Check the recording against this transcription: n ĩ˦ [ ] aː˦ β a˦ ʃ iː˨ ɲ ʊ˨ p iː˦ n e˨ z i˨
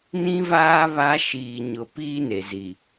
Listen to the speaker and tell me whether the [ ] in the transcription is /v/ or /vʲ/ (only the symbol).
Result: v